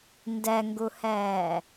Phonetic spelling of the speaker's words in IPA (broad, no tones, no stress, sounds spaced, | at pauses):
n d ɛ ŋ ɡ u h ɛː